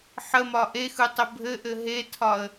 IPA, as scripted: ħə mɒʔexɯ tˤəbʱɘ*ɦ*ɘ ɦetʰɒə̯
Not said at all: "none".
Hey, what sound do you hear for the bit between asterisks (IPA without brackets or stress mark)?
ʔ